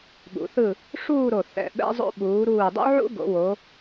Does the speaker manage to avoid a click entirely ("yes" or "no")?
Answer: yes